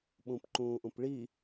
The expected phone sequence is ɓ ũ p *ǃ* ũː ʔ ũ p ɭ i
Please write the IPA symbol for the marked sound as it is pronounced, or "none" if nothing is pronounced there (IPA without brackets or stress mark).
ǃ